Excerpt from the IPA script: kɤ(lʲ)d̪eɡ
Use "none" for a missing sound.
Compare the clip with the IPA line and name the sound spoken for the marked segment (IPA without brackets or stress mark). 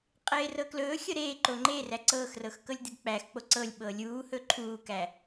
lʲ